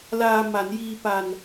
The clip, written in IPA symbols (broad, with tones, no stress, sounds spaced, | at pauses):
l aː˧ m a˩˦ n j iː˧ p a˧ n